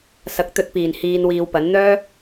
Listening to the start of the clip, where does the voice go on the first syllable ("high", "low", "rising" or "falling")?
low